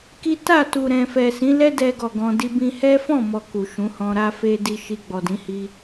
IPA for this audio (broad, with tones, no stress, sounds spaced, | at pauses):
k i˦ t a˦˨ t u˨ ɾ ɛ̃˨ f ɛ˨ s ĩ˨˦ l ɛ˦ d ɛ˧ ɡ ɔ˨ ɡ ɔ̃˧ d i˦ b ĩ˦ h ɛ˦ f ɔ̃˦˨ m ɔ˨ k u˨ ʃ ũ˨˦ h ɔ̃˧ ɾ a˦ f e˦ d i˧ ʃ i˧ ɡ͡b ɔ˨ d ĩ˨˦ h i˧